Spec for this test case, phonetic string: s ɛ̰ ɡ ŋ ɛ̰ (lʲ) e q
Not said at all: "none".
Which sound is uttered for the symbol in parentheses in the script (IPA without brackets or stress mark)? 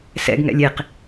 lʲ